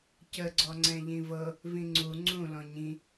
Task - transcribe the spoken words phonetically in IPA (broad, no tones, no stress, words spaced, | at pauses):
cə ɡ͡ǀɔŋ͡ǀɛ̃ʎĩvɤ | vĩŋ͡ǀu ŋ͡ǀũ lɔ̃ɲĩ